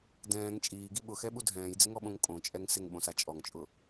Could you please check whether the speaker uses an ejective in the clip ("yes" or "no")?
yes